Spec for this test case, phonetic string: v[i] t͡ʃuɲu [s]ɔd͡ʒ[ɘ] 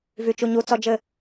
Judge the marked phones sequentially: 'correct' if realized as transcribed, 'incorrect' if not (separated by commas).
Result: incorrect, incorrect, correct